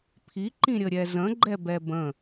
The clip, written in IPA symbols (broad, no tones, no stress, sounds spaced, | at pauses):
pʰ i ǃ ĩ ɾʲ ə ɾʲ ɛ z ə̃ ɡ͡ǃ ɛ b ɛ b ə̃